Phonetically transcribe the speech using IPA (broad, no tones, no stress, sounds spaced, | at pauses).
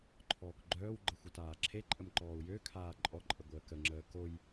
ǃʰ ɔː k ɡ͡ǃ œː w ɡ͡ǃ ə xʷ ə t aː ǁʰ e ǃʼ ə m ǃ ɔː u̯ j ø kʰ aː ǃʼ ɔ ǃʼ ə ɡʷ əː k ə ŋ͡ǁ əː k o j